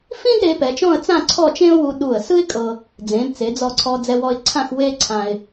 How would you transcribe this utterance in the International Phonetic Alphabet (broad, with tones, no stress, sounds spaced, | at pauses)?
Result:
f ĩ˥ d ɾ e˩˧ p ɛ˩˧ t͡ʃ ɔ̃˥˧ ə̯ t͡s ã˥˧ ǀʰ ɔ˥˧ t͡ʃ ẽ˥ ʊ̯ w u˧ ɗ u˧˩ ə̯ s ɯ˥ ɪ̯ kʼ ɤ˧ | d͡z ẽ˩˧ d t͡s e˩˧ d͡z ɔ˧˩ ǀʰ ɔ˧ d͡z ɛ˧ w ɔ˧ ɪ̯ ǀʰ ã˥˧ x w e˥ ǀʰ ã˧ ɪ̯